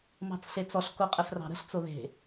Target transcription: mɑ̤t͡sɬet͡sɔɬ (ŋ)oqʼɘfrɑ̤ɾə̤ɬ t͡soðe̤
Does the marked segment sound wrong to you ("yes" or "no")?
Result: yes